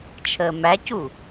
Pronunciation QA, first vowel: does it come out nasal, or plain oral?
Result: oral